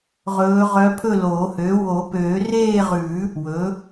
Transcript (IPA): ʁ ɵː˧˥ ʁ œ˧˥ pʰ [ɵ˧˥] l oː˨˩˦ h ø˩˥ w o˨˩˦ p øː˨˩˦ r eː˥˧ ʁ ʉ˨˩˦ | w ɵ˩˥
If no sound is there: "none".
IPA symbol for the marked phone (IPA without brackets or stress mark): ɵ˥˧